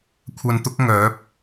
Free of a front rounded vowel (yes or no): no